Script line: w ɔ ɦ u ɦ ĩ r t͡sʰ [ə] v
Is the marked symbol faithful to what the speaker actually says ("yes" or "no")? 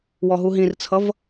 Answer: no